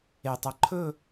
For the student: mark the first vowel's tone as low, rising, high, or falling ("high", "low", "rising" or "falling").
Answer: low